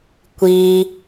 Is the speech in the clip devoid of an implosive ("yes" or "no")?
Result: yes